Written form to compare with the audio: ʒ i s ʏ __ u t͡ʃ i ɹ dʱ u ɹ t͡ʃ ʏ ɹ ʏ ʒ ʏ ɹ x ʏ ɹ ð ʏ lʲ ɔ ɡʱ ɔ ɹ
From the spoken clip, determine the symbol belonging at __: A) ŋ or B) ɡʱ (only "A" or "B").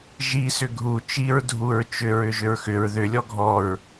B